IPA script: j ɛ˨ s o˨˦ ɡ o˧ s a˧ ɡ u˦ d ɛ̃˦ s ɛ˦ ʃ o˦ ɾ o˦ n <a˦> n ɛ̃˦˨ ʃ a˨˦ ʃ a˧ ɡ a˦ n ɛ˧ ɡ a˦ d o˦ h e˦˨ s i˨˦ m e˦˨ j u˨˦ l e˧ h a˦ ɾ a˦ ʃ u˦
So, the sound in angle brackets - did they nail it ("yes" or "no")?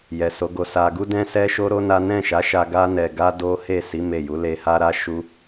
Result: yes